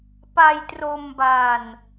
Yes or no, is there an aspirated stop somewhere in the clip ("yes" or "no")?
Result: no